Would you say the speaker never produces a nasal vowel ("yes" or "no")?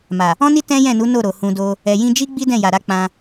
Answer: no